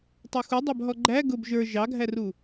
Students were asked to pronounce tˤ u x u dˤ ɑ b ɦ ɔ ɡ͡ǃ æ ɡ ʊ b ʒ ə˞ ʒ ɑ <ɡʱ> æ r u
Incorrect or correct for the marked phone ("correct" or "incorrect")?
correct